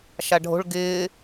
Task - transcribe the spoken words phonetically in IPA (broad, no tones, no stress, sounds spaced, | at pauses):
ʃ a ɖʱ o̤ ɭ ɡ ɪː